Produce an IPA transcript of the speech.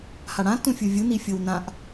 haɽã tũfʲuvʲu nifʲownãʔ

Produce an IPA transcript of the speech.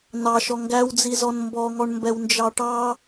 nɑʃɔ ŋɡæwd͡zizɔn mbɔŋɔɳ mbɛwnd͡ʒɑʈɑ

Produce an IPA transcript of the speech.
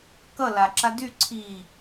kʌ laǁa dy ǀʰiː

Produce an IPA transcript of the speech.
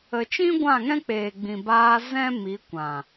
ə˨t͡ʃĩ˦ɡʷã˦˨ ŋɛ̃˦k͡peː˨ɡ͡bĩ˨ baː˧ zɛ̃˦mi˨˦kʷã˨

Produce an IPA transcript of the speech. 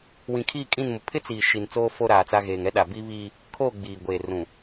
wĩ˨kʰi˦˨kʼĩ˦˨nmʊ˨ pʰɪ˦t͡siː˨ ʃi˨nt͡soː˦ fo˦ɾaː˨t͡sa˦ɣeː˨ŋ ɛ˦ɗa˨bi˦βiː˦ | kʰoː˦˨ ɡ͡biː˨ ɡʷeː˨rũ˨

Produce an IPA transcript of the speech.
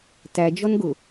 tæd͡ʒɔn ɡʊ

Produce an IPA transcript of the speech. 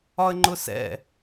ɒə̯ŋ͡ǃʊsɛ̰

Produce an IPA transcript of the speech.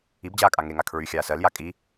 ibd͡ʑaːkʼa ŋeŋa kʰɹyxʲaː sɜlja kʼi

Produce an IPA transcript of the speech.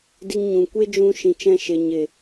di˧ŋɲũ˨ kʷe˦d͡ʒũ˧ʃĩ˨t͡ʃɛ̃˧ ʃe˨ɲe˨

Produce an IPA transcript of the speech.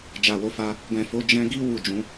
d͡ʒa˨wo˨˦fa˧ | ɡɛ̃˨fo˨˦ d͡ʒɛ̃˧ɡi˦ wu˦˨d͡ʒũ˨˦

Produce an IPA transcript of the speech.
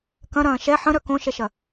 kɐ̃ɾɐ̃ː ʃɛ ħə̃ɾœ kõʃɛʃɐ

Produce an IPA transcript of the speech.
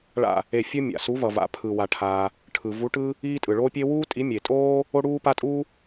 ɭa̰˧˩ | e˧˩fʲɯ˦ mʲa̰˩su˨˦vʌ˩va̰˩ pʰɯ˩wa˩ʈʰaː˩ | ʈʰɯ˩vu˨˦ʈɯ˦ | iː˦tʼɯ˩ɭoː˦pʲe˦ wuː˦tʼi˨˦mʲe˩tʼoː˦ | o˦ɽuː˦ pa˦ tʼuː˦

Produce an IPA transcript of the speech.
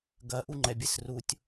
ɡɐ ʔuŋ͡ǃɛbʲɘsrutʲ

